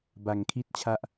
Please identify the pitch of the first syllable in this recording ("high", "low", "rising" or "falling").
low